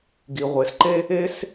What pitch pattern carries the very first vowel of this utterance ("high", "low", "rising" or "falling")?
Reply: low